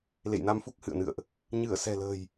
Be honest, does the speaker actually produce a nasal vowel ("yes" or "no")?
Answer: no